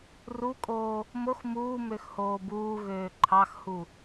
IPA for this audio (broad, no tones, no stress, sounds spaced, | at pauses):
r u kʼ oː | m o x m uː m ø x h oː b uː ɣ øː ǃʰ ɑ x h u